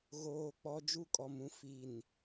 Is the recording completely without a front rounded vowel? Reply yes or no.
yes